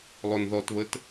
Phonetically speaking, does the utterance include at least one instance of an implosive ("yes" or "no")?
no